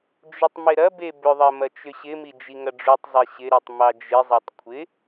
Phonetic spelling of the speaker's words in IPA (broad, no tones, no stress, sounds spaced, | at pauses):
d͡ʒ ʏ tˤ m ɪ ɾ ɐ b e b ʏ ðˤ ɐ m ɐ t͡ʃ ʏ ɕ ɪ m i d͡ʒ i ŋ ɐ ɖ͡ʐ u tˤ zˤ e ɕ ɪ ɾ i tˤ m ɑ d͡ʒ ɪ zˤ e tˤ kʷʰ ɪ